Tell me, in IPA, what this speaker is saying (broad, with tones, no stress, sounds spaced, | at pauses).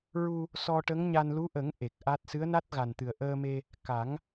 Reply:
ɹ u˧ | s ɔ˧ ʈ ə˧˥ ŋ ɲ a˧ n l u˧˥ ʔ ə˨˩˦ ŋ ʔ e˨˩ k̚ ʔ a˦˥ t̚ s ɨ˧˥ ə̯ n a˦˥ t̚ ɣ a˨˩ n t̪ ɨ˨˩ ə̯ ʔ əː˧ m e˧ | k a˨˩˦ ŋ